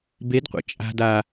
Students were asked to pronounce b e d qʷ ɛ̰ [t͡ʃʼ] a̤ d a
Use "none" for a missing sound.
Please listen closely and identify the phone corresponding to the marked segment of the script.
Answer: t͡ʃʼ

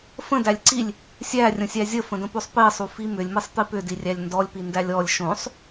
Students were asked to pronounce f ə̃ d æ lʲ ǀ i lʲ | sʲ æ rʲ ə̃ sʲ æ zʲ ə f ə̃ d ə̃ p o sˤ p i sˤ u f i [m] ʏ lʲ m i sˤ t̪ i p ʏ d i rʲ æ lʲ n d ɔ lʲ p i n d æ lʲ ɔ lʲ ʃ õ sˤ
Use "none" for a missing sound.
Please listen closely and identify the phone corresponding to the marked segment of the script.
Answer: m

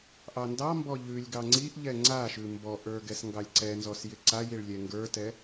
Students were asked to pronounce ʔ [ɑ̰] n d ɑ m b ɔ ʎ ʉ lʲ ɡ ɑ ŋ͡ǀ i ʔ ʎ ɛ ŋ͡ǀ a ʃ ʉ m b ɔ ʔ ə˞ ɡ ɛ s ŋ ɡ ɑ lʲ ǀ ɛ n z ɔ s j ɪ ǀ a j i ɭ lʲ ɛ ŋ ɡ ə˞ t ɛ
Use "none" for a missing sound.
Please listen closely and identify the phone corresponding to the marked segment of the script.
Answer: ɑ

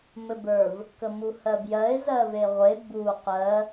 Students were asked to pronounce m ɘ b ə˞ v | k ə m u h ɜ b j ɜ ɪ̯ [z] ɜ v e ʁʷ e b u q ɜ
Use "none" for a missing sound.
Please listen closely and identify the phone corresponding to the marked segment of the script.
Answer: z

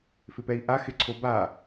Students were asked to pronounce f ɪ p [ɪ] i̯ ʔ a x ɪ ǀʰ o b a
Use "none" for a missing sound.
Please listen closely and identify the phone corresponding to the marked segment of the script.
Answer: ɛ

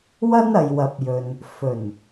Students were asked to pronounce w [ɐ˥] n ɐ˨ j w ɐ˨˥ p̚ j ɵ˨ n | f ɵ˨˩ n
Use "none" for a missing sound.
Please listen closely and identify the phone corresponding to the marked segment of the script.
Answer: ɐ˥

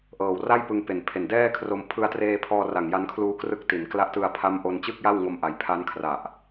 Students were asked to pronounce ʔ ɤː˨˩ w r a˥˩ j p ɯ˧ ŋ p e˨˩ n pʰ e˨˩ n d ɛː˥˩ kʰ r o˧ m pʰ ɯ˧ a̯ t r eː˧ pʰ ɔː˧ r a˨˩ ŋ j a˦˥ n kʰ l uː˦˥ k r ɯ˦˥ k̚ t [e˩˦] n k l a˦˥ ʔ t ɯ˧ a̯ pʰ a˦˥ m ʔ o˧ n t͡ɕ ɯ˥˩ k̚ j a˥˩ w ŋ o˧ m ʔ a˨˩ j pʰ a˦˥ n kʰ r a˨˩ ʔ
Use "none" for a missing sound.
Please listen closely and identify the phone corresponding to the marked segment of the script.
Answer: i˩˦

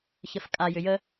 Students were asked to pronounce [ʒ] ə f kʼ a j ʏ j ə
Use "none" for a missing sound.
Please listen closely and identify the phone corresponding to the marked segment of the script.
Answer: ç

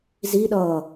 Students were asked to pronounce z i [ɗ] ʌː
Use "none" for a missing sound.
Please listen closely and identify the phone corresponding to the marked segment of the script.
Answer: ɗ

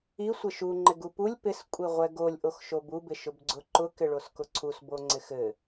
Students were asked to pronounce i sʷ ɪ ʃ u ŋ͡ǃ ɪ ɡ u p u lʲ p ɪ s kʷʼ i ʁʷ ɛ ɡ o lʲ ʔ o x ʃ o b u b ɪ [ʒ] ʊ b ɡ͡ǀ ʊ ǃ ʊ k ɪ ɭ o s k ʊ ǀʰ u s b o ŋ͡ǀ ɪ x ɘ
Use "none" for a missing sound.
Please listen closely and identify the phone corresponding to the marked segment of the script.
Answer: ʃ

